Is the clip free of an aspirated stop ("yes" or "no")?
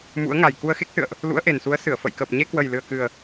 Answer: yes